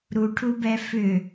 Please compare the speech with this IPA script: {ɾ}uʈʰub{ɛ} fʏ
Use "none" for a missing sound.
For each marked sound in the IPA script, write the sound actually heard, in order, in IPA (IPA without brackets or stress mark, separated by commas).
ɾ, ɛ